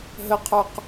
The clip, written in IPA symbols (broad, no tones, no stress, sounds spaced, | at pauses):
ɦ ə qʰ ə˞ q